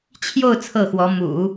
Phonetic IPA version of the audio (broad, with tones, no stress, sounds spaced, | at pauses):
t͡ɕʰ j o˥˧ ʊ̯ t͡sʰ ɤ˥˩ x w ɔ˧˥ m ṵ˨˩˦